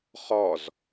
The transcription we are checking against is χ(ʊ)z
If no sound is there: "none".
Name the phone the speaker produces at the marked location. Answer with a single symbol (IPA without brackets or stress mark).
ɔ